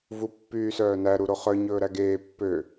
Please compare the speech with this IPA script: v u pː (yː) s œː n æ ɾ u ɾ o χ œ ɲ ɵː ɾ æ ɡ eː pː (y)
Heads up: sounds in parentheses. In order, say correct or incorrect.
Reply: correct, incorrect: ø

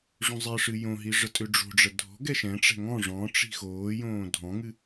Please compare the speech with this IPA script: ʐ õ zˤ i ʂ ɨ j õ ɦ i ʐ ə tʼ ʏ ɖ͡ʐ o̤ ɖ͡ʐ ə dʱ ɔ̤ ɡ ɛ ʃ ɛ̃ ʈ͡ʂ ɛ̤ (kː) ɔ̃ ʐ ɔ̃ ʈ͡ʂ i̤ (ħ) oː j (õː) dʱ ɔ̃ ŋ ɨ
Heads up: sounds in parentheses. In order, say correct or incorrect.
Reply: incorrect: ŋ, incorrect: x, correct

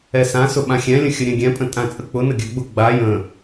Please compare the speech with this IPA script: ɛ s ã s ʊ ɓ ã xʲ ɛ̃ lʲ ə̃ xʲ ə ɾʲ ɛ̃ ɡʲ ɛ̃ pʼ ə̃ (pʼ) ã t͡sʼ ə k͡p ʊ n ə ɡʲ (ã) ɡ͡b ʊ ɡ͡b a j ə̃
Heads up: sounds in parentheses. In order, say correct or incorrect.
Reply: incorrect: tʼ, incorrect: a

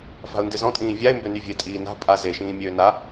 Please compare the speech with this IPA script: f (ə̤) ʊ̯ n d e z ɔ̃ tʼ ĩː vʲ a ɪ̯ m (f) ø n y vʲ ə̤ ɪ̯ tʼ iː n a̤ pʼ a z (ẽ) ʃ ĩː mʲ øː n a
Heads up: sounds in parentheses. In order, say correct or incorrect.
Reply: incorrect: a̤, incorrect: b, incorrect: e

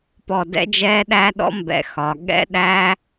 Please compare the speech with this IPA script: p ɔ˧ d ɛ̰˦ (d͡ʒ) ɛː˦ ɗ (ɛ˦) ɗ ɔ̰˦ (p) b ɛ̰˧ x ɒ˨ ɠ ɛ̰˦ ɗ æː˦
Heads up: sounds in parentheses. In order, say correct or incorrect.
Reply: correct, incorrect: æ˦, incorrect: m

